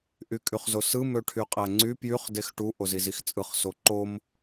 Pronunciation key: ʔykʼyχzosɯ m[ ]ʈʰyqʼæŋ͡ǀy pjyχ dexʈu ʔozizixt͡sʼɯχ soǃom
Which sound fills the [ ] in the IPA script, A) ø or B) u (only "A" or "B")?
A